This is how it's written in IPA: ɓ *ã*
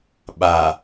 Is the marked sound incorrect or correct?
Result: incorrect